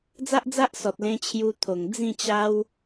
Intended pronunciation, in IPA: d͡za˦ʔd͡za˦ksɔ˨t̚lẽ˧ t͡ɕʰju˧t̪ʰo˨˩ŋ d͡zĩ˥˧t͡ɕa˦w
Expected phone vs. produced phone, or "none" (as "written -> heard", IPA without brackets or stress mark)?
k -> ʔ